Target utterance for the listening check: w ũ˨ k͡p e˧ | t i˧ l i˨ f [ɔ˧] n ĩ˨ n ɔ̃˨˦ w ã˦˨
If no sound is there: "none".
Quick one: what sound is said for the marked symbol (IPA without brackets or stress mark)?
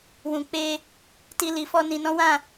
ɔ˧